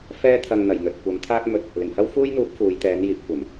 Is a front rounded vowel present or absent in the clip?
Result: absent